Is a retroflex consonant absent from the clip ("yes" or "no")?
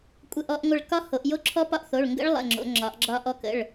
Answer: no